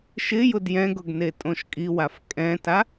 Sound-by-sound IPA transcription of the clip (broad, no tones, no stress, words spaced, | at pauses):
ʃɪ jʊdjɛ̃ɡʊɡ netʼõʃkʼiwaf kʼɛ̃ta